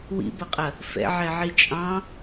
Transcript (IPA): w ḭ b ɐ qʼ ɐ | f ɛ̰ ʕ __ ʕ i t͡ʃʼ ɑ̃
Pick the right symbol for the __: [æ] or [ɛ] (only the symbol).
ɛ